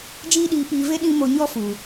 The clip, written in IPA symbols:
d͡ʒ iː˦ ɗ iː˧ p iː˧ v e˦ ɗ ĩ˦ m o˧ ɲ ɔ˦ f u˨

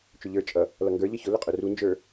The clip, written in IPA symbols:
t͡ʃ ʊ ʎ ə˞ t͡ʃʼ ʌ | l ʌ ŋ ɡ ə˞ ʎ ʌ ç ʊ l ʊ qʼ ʊ r u n d͡ʒ ə˞

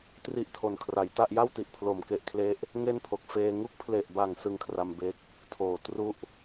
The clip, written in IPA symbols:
t r i˥˩ ʔ tʰ o˨˩ n kʰ r a˩˦ j t a˥˩ ʔ j a˥˩ w t i˨˩ ʔ pʰ l o˩˦ m k e˨˩ ʔ kʰ l e˦˥ ʔ | ŋ e˥˩ n pʰ o˨˩ k̚ f eː˧ ŋ u˦˥ k̚ pʰ l e˨˩ ʔ b a˨˩ ŋ s ɯ˦˥ ŋ kʰ r a˧ m b e˦˥ k̚ | tʰ oː˨˩ t r u˥˩ ʔ

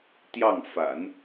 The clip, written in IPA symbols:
t̪ j ɑ˥˩ ŋ f a̰˨˩˦ n

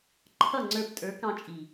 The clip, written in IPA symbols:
ǃʰ ʌ˦˨ ŋ͡ǀ ə˞˧ p tʼ ə˞˨˦ k ɑ̃˧ t͡ʃʼ i˨

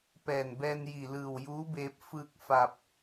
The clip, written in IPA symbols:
p ɛː˧˩ n b ɛː˧ n j i˧˩ l ɯː˧˩ w j uː˧˥ b eː˧ p̚ f ɯː˧ k̚ f a˧ p̚

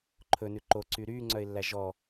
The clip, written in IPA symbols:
ǃʰ ɵ n ʉ ǃ o ǀ y ɾ yː ŋ͡ǀ œ ɪ̯ lː æ ʒ ɔ

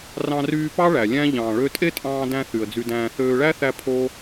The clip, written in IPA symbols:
r ɑ̃˧ r yː˧ p ɑ˦ ɭ æ˨ lʲ æ̃˦ ʎ ɑ̃ː˨ ɭ ø˧ tʼ e˦ tʼ ɑ̃ː˧ d æ̃˧ θ y˨ ə̯ d͡z y˧ d æ̃ː˧ θ øː˧ ɭ æ˦ θ æ˧ pʰ o˦

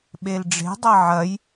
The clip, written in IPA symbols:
ɓ e l ɖ͡ʐ e̤ dˤ ɐ ʕ ɐ j

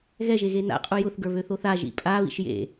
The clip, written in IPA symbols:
ɣ ɛ ʒ e ɣ e n a̰ qʼ u j ʊ θ ɡ ə˞ β ø θ o θ a ʒ ḭ pʼ a β ḭ ʃ j ḛ

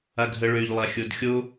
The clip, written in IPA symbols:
a ɡʱ ə ɭ ø ʎ lˠ a xʲ o d xʲ o

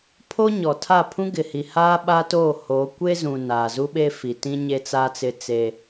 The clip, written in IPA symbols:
pʰ oː˦ ɲ ɔ˨ tʰ a˦˨ pʰ ũ˦ ɡ ɪ˨ h i˨ h aː˦ ɓ aː˦ t oː˦˨ h oː˨˦ kʷ e˦ z ũ˨ n aː˨ z u˦ ɓ e˦ f i˨ t ĩ˦ ɲ e˦ t͡s a˦ t͡s ɪ˦ t͡s e˦

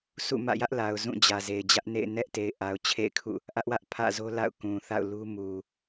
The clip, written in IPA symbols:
sʰ ṵ˦˨ m ä̰˦˨ j ä˦ ʔ l a˨ ʊ̯ z ũ˦˨ d͡ʑ ä˨ z e˨ ɪ̯ d͡ʑ ä˦ ʔ n ḛ˦˨ ɪ̯ n ɛ˦ ʔ t e˨ ɪ̯ ʔ a˨ ʊ̯ t͡ɕʰ ḛ˦˨ ɪ̯ kʰ ṵ˦˨ | ʔ ä˦ ʔ w ä˦ ʔ pʰ ä̰˦˨ z o˦ l a̰˦˨ ʊ̯ k ũ˨ θ a̰˦˨ ʊ̯ l u˦ m u˨

